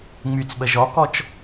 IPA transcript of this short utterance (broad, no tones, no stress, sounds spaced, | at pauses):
ŋ͡m y t͡s ɓ ə ʒ ɔ k ɔ t͡ʃ